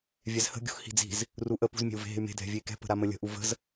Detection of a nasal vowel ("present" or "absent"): absent